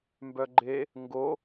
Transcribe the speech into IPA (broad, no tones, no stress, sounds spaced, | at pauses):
m b œ ɡ͡ǃ e | ŋ ɡ o